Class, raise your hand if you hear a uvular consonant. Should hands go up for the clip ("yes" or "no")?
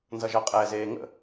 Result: yes